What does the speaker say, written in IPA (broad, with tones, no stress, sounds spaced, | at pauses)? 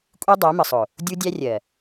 kʷʼ i˦ dˤ æ˨˦ m ə˨ sˤ ʊ˨ | dʲ u˦ dʲ æ˦ rʲ ɜ˨